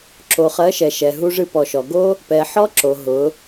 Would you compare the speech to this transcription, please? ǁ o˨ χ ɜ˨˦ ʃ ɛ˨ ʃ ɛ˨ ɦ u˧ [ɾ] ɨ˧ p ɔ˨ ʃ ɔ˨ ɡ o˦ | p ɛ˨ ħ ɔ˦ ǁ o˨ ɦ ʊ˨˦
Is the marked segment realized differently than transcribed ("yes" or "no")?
yes